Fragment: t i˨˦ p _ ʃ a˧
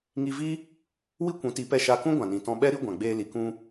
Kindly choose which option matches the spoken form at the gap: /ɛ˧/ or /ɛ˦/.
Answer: ɛ˧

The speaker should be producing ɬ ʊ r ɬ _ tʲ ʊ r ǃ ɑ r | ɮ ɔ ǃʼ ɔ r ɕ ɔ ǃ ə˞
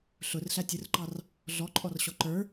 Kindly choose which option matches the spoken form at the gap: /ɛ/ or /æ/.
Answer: æ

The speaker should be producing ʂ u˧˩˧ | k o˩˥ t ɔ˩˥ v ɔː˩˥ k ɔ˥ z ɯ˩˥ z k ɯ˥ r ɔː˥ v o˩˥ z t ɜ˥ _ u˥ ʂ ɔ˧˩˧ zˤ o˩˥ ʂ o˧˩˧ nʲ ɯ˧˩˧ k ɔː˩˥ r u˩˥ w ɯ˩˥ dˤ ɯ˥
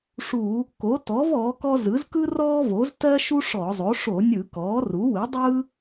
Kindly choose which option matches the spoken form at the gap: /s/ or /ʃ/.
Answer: ʃ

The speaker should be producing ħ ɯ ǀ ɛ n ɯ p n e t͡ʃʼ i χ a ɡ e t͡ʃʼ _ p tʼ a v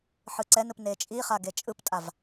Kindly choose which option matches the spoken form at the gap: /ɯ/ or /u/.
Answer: ɯ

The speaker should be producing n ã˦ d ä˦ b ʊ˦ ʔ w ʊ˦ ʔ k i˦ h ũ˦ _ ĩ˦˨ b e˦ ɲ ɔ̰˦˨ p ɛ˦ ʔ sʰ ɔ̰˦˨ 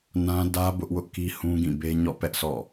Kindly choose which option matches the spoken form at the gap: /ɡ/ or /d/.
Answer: ɡ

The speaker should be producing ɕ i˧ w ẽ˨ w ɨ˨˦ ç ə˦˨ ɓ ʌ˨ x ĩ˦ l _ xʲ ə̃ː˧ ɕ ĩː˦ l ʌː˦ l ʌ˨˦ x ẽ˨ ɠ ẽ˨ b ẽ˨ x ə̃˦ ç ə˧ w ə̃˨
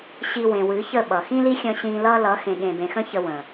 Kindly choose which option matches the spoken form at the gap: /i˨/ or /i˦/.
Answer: i˦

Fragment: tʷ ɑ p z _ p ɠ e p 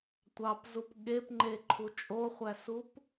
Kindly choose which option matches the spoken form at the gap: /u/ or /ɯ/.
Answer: u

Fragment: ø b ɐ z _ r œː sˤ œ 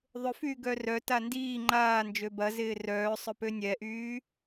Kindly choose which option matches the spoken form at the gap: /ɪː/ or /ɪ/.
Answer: ɪː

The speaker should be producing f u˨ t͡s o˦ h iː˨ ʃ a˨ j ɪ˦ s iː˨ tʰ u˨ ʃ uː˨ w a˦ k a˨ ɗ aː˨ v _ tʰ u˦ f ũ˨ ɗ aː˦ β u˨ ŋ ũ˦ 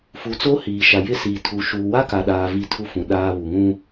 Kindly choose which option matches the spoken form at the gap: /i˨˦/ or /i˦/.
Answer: i˦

